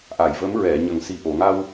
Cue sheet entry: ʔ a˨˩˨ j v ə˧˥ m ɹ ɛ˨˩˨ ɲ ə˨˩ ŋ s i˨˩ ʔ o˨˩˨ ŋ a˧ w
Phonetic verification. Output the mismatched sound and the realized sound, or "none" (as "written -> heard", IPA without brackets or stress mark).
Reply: none